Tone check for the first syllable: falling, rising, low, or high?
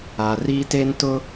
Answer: low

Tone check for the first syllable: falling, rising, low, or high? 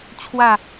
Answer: falling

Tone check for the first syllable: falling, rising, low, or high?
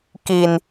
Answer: low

